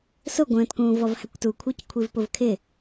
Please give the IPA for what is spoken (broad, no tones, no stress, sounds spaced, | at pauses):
s ʊ ɡʷ ə̃ː t k ũː v ɔ v h æ kʷ t u kʷʰ ə˞ c kʷʰ i v p ʊ v kʰ ɪ